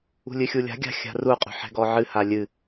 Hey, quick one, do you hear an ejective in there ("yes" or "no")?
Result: yes